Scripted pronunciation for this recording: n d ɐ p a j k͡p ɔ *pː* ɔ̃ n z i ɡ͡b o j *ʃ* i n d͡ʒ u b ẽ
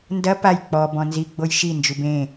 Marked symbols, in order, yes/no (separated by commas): no, yes